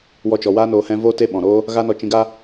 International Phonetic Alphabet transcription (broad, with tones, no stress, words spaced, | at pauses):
wɔ˧t͡ʃɔ˨ waː˦noː˧ hɛ̃˧ voː˦te˦ɓɔ̃˨ɾoː˦ | ɣa˦nɔ˧ t͡ʃĩ˧ɡa˦